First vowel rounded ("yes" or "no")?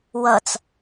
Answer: no